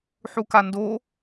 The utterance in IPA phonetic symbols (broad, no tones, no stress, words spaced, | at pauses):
ħukando